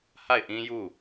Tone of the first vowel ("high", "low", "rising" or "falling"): falling